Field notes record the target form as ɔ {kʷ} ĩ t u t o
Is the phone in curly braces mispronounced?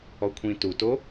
yes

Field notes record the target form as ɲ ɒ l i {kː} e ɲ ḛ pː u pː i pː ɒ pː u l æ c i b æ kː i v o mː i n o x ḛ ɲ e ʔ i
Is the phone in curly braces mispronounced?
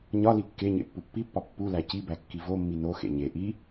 no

